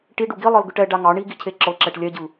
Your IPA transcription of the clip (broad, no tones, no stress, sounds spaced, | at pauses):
ʈ i ɖ u ɡ i lˠ ɤ l ɡ ɯ ʈ ɛ ɖ a ŋ ɑ ɳ i ɡ i cʰ e ǁ ɤ ǁ ɛ ʈ lʲ ɛ ɟ ɯ